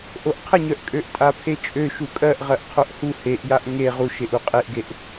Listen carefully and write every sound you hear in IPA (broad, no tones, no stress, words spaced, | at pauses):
ʔoʔqʰəɲœʔ kʼøʔtʼapʰet͡ʃʼø ʃukʼɜʔʁɜʔ qʰoʔhu heʔjaʔ ŋe ʁuʃeʔu qʼeʔɡeʔ